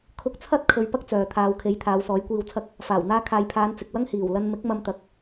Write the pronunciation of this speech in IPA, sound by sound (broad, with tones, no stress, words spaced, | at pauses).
kʰʊ˧k̚t͡sʰɐ˥t̚ kʰɵ˨˧ɥ pɐ˥k̚t͡sœː˨ t̪ʰaː˨˧wkʰe˨˥j t̪ʰaː˨˧wsɔː˨˥jkʷiː˧wt͡sʰɐ˥k̚ | faː˨˩w n̪aː˧kʰaː˨jpʰaː˨˧n t͡sɪ˨k̚wɐ˥ŋ hiː˨˩wlɐ˧n mɪ˨˥k̚mɐ˧mt̪ɐ˨k̚